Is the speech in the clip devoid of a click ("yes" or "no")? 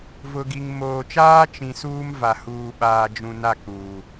yes